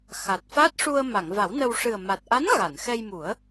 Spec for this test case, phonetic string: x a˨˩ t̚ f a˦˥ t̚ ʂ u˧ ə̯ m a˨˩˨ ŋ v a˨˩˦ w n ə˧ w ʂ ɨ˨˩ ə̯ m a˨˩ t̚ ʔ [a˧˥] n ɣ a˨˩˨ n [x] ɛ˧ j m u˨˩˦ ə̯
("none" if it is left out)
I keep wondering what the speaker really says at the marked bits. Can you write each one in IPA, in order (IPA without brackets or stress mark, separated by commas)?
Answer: a˧˥, x